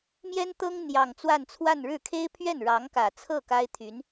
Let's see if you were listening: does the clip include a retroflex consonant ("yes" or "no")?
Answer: yes